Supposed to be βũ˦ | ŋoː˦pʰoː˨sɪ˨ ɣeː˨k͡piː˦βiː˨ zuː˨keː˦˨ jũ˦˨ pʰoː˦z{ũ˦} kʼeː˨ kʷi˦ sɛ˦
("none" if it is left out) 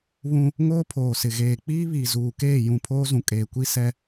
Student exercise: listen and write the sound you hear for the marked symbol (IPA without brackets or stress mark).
ũ˨